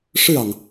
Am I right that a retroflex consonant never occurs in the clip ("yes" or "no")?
no